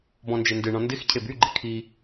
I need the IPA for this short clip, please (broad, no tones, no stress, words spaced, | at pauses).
bɔ̃nd͡ʒendɨɳɔ̃ ndɪxcʰeb yɡ͡ǃɪ kʰi